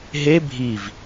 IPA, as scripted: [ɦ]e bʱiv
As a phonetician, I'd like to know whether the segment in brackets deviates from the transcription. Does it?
no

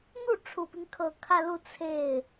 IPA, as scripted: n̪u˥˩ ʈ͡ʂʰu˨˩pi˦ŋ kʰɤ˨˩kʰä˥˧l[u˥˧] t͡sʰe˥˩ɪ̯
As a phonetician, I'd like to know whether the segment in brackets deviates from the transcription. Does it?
no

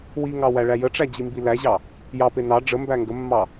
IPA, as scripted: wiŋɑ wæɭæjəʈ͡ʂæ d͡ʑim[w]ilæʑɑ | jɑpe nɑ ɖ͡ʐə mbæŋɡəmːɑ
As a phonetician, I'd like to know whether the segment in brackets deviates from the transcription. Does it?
yes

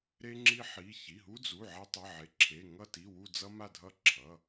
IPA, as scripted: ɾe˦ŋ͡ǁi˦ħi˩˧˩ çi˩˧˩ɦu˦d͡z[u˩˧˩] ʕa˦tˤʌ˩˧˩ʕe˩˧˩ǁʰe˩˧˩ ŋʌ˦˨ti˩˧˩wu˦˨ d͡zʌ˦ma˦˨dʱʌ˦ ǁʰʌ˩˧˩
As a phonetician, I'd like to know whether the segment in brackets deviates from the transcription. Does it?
no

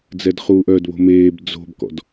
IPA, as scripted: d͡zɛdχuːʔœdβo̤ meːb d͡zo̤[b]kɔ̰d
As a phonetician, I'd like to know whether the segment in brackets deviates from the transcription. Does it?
no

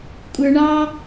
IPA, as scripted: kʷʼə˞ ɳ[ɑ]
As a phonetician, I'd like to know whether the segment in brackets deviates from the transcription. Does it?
no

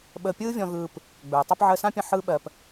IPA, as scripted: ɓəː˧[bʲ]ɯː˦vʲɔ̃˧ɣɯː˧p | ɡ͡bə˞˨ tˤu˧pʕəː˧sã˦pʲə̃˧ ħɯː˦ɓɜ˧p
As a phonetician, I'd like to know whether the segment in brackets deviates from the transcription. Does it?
yes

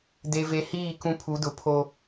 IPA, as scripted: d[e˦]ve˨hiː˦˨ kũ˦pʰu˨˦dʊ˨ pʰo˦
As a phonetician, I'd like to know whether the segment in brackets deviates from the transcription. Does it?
yes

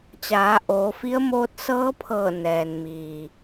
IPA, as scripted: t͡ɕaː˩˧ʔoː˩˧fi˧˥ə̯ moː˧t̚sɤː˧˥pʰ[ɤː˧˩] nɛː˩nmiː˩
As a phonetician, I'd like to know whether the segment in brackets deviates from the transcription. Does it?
no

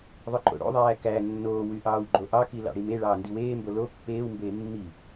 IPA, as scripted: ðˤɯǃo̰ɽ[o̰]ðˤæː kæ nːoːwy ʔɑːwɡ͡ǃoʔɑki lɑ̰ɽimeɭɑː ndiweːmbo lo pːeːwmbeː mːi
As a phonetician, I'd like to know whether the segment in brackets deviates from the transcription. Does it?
no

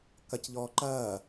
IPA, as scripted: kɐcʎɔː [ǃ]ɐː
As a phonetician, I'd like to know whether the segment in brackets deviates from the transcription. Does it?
no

